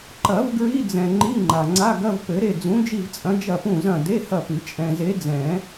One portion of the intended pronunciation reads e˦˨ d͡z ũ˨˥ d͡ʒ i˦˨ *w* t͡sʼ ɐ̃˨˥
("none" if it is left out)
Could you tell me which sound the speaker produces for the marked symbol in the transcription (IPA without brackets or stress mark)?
v